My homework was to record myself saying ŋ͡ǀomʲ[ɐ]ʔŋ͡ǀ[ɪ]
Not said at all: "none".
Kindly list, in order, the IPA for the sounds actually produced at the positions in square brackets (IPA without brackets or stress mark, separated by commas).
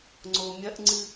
ɐ, ɨ